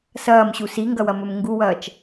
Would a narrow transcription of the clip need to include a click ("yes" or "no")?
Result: no